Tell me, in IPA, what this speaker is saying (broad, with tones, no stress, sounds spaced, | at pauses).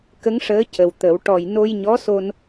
k ə˧˥ ŋ ʂ əː˧˥ c ə˨˩ w t̪ ə˨˩˦ w ʈ ɔ˨˩ j n o˧ j ɲ ɔ˧˥ s o˧ n